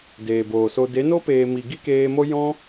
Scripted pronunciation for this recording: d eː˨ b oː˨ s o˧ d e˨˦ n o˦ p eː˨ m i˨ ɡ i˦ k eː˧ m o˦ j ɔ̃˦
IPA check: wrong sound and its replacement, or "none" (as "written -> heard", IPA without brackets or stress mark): none